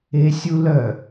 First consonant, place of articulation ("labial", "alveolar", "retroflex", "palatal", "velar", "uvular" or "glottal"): alveolar